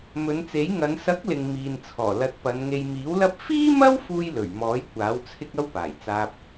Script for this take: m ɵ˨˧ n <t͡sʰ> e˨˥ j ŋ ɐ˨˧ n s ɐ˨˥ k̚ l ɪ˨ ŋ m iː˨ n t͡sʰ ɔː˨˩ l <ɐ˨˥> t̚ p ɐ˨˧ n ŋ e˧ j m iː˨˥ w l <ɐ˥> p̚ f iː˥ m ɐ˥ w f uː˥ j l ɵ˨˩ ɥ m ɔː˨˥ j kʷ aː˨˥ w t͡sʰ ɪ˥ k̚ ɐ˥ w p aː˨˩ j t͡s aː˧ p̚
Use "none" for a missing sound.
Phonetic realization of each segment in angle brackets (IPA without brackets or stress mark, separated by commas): t͡s, ɐ˨˥, ɐ˥